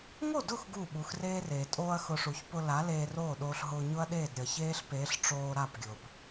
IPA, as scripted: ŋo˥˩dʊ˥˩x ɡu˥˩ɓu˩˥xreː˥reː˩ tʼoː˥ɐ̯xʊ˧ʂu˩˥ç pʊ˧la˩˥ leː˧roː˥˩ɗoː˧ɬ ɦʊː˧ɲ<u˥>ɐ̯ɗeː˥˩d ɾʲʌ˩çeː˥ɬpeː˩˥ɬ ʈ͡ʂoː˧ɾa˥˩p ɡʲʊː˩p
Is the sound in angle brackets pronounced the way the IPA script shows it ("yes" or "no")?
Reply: no